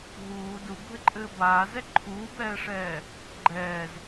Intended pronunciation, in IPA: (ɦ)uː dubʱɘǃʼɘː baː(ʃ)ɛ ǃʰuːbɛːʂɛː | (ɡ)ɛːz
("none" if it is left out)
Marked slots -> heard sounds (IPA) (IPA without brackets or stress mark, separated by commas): ɦ, z, ɡ͡ǃ